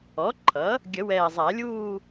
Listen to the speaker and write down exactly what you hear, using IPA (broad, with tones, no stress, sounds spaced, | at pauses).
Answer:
ɔ˩˥ ǃʰ ʌ˩˥ | ɡʲ ə˨˩˦ w ɛː˨˩ zˤ æ˨˩˦ lʲ uː˥˧